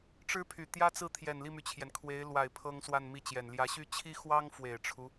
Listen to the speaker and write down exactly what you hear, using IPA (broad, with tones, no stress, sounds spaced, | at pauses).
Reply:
ʈ͡ʂ ɻ̩˥ pʰ y˨˩ t̪ j ä˥ t͡s ɹ̩˥˩ t̪ʰ j ɛ˨˩ n l i˥˩ m y˩ t͡ɕʰ j ɛ˩ n kʰ w e˧˥ ɪ̯ l w a˨˩ ɪ̯ pʰ ɤ˥ ŋ s w a˥˧ n m i˥˩ t͡ɕ j ɛ˨˩ n l j ä˧˥ ɕ y˥ t͡ɕʰ i˥ x w ɑ˥ ŋ f w e˨˩ ɪ̯ ʈ͡ʂʰ u˦